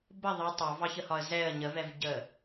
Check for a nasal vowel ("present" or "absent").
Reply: absent